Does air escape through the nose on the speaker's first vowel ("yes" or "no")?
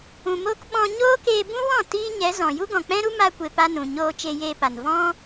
yes